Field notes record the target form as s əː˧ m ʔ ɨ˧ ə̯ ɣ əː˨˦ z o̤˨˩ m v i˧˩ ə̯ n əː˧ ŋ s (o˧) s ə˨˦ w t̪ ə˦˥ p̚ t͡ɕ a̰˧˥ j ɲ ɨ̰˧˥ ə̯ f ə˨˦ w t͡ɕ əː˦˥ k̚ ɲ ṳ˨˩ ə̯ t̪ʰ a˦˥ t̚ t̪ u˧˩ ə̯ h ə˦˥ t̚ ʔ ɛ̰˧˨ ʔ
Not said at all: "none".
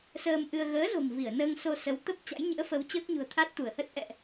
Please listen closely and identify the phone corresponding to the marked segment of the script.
o˧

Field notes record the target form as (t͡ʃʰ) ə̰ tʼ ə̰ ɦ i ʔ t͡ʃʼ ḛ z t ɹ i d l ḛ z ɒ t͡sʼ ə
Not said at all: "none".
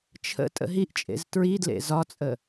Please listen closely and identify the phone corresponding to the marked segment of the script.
t͡ʃʰ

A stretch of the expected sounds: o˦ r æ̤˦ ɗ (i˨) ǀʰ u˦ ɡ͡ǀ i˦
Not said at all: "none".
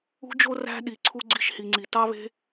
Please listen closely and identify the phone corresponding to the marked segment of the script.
i˧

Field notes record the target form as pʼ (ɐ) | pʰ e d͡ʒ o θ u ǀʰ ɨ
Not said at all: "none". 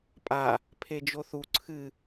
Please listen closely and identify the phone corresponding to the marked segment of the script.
a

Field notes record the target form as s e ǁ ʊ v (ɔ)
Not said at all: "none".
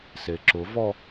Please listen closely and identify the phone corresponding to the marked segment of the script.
ɔ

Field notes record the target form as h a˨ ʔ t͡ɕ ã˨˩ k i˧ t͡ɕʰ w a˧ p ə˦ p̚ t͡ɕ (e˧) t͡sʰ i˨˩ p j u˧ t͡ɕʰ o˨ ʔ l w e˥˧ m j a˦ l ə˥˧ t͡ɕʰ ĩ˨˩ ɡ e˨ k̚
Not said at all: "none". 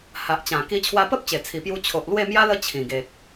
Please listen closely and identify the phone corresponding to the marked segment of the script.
e˨˩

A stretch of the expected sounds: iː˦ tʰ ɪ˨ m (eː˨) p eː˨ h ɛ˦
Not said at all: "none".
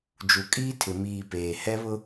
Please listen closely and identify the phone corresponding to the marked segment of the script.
iː˨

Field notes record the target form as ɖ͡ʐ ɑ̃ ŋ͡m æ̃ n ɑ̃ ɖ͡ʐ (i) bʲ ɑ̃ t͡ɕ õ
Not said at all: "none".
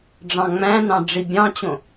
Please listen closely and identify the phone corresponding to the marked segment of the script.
i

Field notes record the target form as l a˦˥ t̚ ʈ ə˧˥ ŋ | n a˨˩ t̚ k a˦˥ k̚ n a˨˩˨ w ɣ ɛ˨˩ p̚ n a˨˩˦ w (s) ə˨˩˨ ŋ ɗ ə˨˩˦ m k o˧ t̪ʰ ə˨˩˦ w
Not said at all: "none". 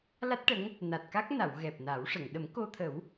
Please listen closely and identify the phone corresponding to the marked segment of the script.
ʂ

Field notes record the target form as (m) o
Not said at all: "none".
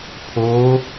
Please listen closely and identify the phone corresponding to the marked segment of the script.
pʰ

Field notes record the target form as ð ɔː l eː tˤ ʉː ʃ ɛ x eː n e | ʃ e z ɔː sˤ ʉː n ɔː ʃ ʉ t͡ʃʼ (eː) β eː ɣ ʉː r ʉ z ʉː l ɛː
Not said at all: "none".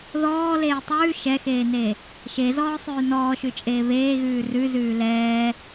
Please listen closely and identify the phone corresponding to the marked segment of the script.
eː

